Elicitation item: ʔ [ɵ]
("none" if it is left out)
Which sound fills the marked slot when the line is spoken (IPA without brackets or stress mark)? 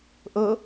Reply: ɤ